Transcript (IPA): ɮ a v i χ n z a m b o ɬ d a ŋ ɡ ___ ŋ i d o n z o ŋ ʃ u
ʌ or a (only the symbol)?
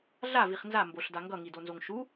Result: ʌ